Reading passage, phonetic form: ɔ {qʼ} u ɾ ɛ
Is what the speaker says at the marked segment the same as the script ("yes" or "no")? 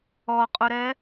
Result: yes